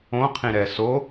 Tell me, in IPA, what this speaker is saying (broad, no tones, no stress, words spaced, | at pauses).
õqʰĩɾɛ so